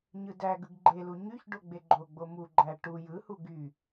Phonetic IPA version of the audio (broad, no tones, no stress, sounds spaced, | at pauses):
ɲ ɯ d æ ɡ ɯ ɡ ɡ͡ǃ e l u ɲ y ç ɖ o ɡ͡b e ɡ͡ǃ o ɡ͡b o m u ɡ͡ǃ æ ʈ u j ɯ h u ɡ y